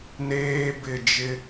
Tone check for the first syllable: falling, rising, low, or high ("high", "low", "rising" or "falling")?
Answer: high